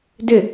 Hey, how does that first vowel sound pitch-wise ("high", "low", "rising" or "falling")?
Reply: falling